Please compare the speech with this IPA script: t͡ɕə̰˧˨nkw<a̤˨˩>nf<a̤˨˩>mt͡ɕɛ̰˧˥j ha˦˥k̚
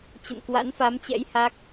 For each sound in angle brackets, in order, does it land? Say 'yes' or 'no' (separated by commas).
no, no